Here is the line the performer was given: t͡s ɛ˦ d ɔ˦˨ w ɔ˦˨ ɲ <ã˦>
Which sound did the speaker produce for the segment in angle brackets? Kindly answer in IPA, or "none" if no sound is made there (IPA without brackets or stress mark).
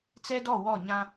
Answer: ã˦